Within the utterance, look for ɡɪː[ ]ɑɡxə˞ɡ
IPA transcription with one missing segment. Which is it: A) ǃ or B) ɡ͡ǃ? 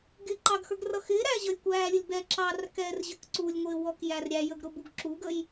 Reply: A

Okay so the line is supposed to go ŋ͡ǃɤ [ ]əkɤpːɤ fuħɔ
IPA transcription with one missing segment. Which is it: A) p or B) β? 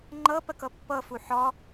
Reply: A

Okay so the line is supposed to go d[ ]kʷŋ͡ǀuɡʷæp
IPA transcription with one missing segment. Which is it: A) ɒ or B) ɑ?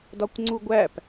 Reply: A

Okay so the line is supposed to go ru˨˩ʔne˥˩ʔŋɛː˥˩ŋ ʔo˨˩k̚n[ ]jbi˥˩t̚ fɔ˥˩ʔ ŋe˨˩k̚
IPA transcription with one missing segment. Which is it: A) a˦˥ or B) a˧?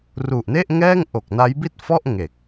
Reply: A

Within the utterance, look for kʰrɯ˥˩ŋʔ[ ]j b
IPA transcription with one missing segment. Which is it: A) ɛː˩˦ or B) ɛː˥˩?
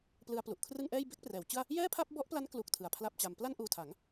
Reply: B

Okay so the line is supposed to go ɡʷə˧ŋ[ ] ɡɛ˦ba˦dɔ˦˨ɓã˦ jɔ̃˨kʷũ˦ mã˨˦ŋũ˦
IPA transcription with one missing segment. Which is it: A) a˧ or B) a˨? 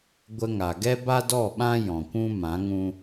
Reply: B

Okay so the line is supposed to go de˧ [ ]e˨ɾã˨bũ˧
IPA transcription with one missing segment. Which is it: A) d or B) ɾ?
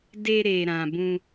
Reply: B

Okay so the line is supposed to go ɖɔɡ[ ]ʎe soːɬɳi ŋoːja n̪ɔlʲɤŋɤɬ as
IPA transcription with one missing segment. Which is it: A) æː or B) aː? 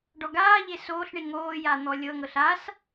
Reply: B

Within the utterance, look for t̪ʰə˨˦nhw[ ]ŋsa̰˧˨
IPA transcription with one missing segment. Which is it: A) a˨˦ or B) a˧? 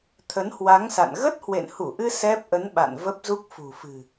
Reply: A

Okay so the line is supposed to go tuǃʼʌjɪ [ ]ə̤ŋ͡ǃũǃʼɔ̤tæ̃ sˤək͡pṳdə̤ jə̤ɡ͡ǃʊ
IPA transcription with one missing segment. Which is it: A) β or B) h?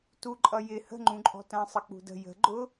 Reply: B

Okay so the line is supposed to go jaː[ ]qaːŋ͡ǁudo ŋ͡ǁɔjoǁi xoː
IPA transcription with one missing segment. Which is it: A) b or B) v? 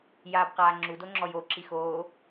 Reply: A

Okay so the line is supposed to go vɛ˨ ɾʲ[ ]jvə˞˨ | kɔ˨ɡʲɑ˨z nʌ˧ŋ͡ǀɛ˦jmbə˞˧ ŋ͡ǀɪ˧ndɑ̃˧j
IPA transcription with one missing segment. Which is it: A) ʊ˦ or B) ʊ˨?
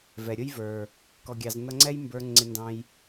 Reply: A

